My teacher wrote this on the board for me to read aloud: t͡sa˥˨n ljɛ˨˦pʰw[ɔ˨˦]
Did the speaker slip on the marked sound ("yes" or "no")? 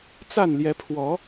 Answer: no